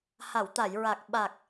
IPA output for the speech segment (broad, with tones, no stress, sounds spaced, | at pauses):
h a˨˩˨ w t̪ a˨˩˨ j ɹ a˨˩ k̚ ɓ a˨˩ k̚